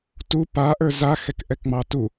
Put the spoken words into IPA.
t u p a ʔ ə˞ z a x ɛ k ʔ ɛ k ŋ͡m ɑ t u

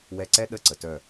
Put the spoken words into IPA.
w ɛ˧ ǀ ɛ˦ ɗ ə˦˨ ǀ ə˨ t œ˦˨

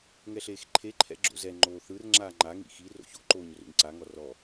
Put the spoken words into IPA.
ŋ ɛ ɬ eː x ǃʰ e ǃʰ ɛ̰ ɡ͡ǁ o̰ z ɛ ŋ͡ǃ oː θ ɯ r ŋ͡ǁ aː ŋ͡ǃ a ŋ ḭ x i r o̰ ç o̰ ǃ oː ɲ r o̰ ɲ ǀ a ŋ ɔ r ɔ

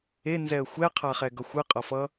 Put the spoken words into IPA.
e n z ɛ ə̯ xʷ ɛ qʰ a χ ɛ ɡ ʌ xʷ ɯ qʼ ʌ f ʌ

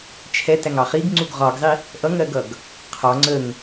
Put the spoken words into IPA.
t͡ʃʰ ɛ t æ ŋ ɑ χ i ɡ ŋ͡ǀ u ɡ ʁ ɒ ɡ zˤ i | ʔ ʌ ŋ ɜ ɡ ʌ ɡ | qʰ ɒ ŋ͡ǀ ə ŋ

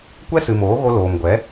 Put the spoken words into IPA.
kʷ ɛ˦ s ɨ˨ m oː˨˦ ɣ o˧ l oː˨ m ɡʷ ɛ˨˦

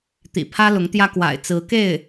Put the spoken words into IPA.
t̪ ḭ˨˩ pʰ ä˥ l ʊ˧˥ ŋ t̪ j ä˥ k w a̰˨˩ ɪ̯ t͡s ɹ̩˧˥ k e˥˩ ɪ̯

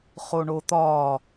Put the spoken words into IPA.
χ o ɳ o t̪ ɒː

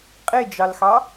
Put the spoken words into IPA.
qʼ e d͡ʒ ɑ l x ɑ

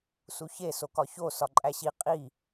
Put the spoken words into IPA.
s u ç e s o k ɒ ç o s ɒ ǃʼ æ ɕ i qʼ i

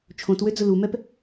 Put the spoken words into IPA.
t͡ʃʰ õ t w ø d͡z ʊ l u m ɛ p

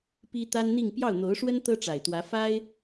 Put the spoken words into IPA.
p i˥ t̪ a˥ n n̪ i˥˧ ŋ p j ɑ˥˩ ʊ̯ n̪ o˧˥ ʊ̯ ʂ w ə˥ n t̪ ɤ˥ ʈ͡ʂ a˨˩ ɪ̯ t̪ w ä˧˥ f a˥ ɪ̯

